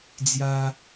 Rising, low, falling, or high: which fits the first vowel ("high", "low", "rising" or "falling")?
high